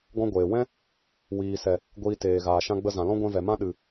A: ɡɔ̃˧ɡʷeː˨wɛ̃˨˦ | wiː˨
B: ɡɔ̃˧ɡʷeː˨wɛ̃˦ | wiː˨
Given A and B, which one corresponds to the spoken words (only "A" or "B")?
B